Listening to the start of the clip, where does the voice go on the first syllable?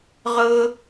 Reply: high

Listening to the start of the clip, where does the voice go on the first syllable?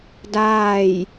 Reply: falling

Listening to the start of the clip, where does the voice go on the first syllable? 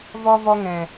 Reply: low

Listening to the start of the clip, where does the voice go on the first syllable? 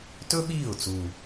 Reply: high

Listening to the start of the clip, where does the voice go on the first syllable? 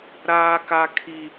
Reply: high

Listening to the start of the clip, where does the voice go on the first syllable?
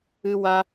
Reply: high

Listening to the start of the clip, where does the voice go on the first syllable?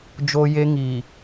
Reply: high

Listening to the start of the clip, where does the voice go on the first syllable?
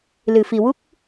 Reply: low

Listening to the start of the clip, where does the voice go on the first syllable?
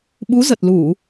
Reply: rising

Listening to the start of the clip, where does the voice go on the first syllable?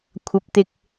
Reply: rising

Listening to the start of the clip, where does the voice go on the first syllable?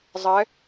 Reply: rising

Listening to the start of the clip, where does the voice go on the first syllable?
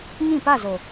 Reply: falling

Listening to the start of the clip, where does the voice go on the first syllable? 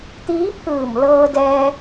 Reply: rising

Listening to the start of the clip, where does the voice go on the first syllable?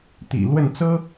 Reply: low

